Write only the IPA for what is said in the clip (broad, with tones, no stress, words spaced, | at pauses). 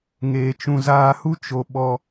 ŋeː˧t͡ʃũ˧ zaː˧hu˦ t͡ʃo˧ɓɔ˧